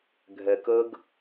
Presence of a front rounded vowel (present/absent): absent